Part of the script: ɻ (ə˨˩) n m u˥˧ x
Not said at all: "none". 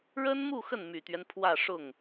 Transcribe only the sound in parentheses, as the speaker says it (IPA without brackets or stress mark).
ə˥